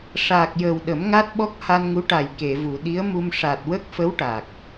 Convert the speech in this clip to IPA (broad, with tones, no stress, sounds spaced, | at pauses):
ʂ aː˨˩ k̚ j əː˨˩ w ɗ ə˨˩˦ m ŋ a˦˥ t̚ ɓ ɔ˦˥ k̚ h a˧ n ŋ u˧˥ ʈ a˨˩ j k e˨˩˨ v u˨˩˨ ɗ i˧˥ ə̯ m u˧ m ʂ a˨˩ t̚ w ə˦˥ k̚ f ə˧˥ w ʈ a˨˩ k̚